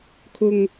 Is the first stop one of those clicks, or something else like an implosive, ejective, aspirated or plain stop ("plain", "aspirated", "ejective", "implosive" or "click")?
aspirated